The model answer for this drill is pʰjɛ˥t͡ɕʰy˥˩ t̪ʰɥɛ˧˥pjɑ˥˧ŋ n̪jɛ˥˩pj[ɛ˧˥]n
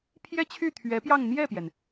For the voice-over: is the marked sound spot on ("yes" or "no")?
no